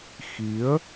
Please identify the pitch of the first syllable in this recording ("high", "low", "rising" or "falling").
rising